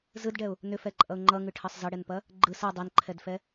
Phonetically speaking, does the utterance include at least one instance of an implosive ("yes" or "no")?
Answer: no